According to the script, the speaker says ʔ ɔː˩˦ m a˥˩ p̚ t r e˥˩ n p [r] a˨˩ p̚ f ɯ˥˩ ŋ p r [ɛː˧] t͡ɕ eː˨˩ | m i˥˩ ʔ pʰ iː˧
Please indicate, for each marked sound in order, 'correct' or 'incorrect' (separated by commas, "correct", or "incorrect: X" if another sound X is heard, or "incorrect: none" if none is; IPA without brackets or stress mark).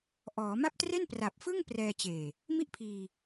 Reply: correct, correct